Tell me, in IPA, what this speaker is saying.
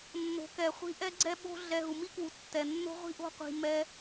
nː o̤˨ k ɛ˨ χʷ i̤˧ ʔ ɛ˦ ɡ͡ǀ ɛ˦ ɓ o̤˦ ɮ ɛ˧ ɦ u˨ m i˦ k w u˨ tː ɛ˨ nː o̤˦ ʁʷ i̤˦ ʔ o̤˦ qʷ i̤˧ m ɛ˦

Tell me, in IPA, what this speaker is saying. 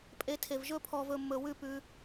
pʼ e˨˦ tʰ e˨ v ʒ ɵ˦ pʰ ɔ˧ v ɵ˧ mː ɵ˧ w ʉ˦˨ p ʉ˧

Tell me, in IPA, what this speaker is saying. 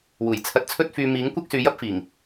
w uː˨˩ j t͡sʰ ɐ˧ t̚ t͡sʰ ɵ˥ t̚ f yː˧ m iː˨˥ ŋ kʷ ɐ˥ k̚ s yː˨˧ j ɐ˥ p̚ f iː˨˩ ŋ

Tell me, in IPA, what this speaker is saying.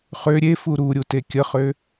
χ ø ɾʲ e f u ɾ u ɾʲ u t e kʲ ə χ ø

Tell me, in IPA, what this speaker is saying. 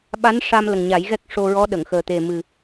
ɓ a˧˥ n ʂ a˧ m l ə˨˩ ŋ ɲ a˨˩˦ j ɣ ɛ˦˥ k̚ ʂ o˧ ɹ ɔ˧˥ ɗ ə˨˩˨ ŋ x əː˨˩ t̪ e˨˩ m ɨ˨˩

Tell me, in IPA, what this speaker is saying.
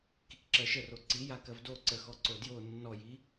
k i k ǁ ɜ ʃ ə r o ǀ i j a k ɜ v d o ǀ ə x ɔ ǀ o d j o nː ɔ j i

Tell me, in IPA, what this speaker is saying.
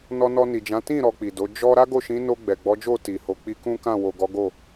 n ɔ˧ n ɔ˧ n i˨ d͡ʒ ã˨˦ t ĩ˦˨ ɾ ɔ˧ k͡p i˨ d o˨˦ d͡ʒ ɔ˧ ɾ a˦ ɡ o˦˨ ʃ ĩ˨˦ n o˧ ɡ͡b ɛ˨ ɡ͡b ɔ˨˦ d͡ʒ o˦˨ t i˨ h o˨ k͡p i˧ k ũ˦ k ã˦˨ w o˨ ɡ ɔ˨˦ ɡ o˦˨

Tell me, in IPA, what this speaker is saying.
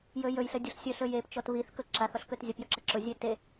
j ɵ j ɵ j ɬ ə dʲ ʊ ɬ sʲ ɵ ɬ ɵ j e p t͡ʃ ɔ t β i θ k ɵ ǁ a θ ɔ ɬ k ɵ t zʲ ə p j ɵ ǁ ə ǁ ʊ zʲ e t e

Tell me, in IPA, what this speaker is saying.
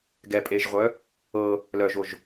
ɡ ɛ pʼ eː ʒ ʁʷ œ | ɤ | l œ ʒ o ʒ

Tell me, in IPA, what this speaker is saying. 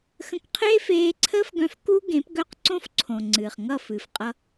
x ə̃˦ k qʰ eː˦ f eː˧ ǀʰ əː˦ f ɡ œ̃˧ f k u˦ ɡ ẽ˨˦ p ɡ œ˦˨ q ǀ õ˦ f ǀʰ õ˨ ŋ͡ǀ ɨː˨ χ ŋ ʌ˦˨ f ɨ˨ f qʼ ʌ˧

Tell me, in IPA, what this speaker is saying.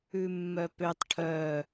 ʉ mː œ p ø tˤ ʈʰ œ

